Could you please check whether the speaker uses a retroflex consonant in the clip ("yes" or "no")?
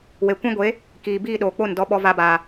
no